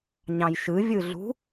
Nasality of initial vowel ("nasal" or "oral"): nasal